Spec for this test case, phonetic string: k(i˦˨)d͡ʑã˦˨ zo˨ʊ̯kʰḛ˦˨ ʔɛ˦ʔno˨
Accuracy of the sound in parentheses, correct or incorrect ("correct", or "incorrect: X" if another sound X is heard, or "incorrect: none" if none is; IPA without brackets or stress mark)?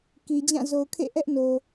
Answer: incorrect: i˨